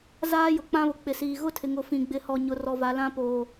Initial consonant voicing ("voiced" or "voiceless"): voiced